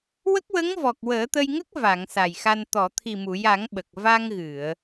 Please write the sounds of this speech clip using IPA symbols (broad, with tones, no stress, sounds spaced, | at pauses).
w ə˦˥ k̚ w ə˧˥ ŋ v ɔ˨˩ k̚ w əː˨˩˦ t̪ ə˧ j ŋ ə˦˥ k̚ v a˨˩˨ ŋ s a˨˩ j x a˧ n t̪ ɔ˨˩˨ t̪ʰ i˨˩ m u˨˩˨ j a˨˩˦ ŋ ɓ ə˨˩ k̚ v a˧ ŋ ɣ ɨ˨˩˨ ə̯